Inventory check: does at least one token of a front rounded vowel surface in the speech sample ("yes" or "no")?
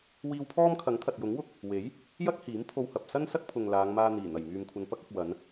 yes